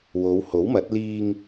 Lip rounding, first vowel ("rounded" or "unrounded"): rounded